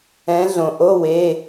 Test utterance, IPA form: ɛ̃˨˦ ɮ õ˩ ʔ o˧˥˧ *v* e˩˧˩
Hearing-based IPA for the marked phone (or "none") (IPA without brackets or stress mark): w